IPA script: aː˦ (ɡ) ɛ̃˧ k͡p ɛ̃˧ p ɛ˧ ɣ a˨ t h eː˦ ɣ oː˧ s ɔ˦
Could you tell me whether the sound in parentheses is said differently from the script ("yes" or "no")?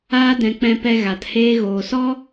yes